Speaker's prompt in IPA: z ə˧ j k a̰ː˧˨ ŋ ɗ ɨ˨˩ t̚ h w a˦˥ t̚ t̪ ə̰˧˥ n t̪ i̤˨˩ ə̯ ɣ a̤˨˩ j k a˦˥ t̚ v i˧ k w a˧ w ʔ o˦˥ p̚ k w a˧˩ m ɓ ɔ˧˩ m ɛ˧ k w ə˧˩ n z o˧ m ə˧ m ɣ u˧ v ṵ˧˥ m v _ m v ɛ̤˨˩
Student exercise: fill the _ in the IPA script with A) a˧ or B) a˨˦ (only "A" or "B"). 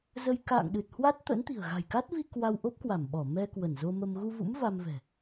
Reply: A